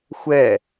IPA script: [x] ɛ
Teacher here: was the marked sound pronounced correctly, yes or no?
no